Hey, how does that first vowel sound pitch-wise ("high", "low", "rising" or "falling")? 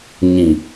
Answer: low